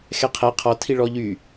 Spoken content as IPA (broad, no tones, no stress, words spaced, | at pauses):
xɛqʰɛ qʰɔtʰi ɭɔʎy